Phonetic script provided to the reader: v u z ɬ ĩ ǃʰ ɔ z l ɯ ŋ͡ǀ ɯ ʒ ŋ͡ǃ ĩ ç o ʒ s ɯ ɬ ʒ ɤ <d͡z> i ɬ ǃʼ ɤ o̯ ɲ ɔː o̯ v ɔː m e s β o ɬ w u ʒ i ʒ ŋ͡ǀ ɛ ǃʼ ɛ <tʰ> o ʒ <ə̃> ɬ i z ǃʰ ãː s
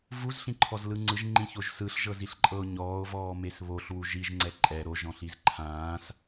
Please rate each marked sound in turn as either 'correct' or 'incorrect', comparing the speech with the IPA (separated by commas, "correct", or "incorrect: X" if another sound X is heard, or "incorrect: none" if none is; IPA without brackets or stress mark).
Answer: incorrect: z, incorrect: ɾ, incorrect: ɔ̃